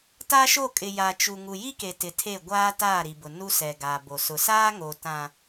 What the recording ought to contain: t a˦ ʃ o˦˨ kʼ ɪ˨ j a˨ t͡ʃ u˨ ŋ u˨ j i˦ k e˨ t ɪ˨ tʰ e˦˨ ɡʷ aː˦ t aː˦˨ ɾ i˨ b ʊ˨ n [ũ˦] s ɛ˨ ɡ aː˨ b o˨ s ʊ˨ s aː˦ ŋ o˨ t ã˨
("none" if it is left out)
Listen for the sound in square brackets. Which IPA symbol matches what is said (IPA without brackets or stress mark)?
u˦